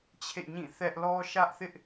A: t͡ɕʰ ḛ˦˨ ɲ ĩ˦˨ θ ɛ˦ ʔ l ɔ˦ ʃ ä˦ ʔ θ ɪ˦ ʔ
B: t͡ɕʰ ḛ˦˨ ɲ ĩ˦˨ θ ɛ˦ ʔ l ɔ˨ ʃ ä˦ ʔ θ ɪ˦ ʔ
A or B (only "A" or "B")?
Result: A